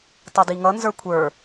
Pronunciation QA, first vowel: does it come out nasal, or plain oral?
oral